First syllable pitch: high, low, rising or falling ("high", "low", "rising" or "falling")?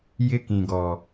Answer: high